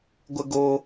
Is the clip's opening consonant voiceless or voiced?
voiced